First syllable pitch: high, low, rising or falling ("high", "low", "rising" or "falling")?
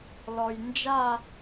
low